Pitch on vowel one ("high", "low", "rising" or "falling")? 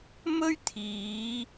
high